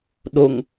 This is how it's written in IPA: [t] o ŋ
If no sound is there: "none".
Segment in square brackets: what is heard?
ɗ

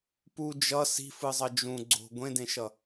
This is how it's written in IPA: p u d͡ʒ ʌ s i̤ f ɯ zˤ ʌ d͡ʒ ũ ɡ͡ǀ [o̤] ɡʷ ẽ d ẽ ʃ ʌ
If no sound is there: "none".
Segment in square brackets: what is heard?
o̤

